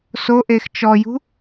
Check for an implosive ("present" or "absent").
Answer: absent